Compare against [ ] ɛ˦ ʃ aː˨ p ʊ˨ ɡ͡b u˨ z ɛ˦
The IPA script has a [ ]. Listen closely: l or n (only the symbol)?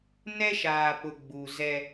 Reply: n